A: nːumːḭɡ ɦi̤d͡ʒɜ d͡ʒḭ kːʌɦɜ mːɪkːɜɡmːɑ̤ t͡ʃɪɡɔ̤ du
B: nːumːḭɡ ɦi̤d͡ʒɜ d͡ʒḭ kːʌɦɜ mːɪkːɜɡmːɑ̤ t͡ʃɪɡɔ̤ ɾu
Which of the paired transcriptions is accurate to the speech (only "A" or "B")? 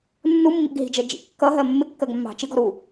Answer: B